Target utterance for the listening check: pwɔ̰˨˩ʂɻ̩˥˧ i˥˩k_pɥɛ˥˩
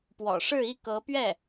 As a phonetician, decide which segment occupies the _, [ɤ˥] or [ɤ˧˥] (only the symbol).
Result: ɤ˧˥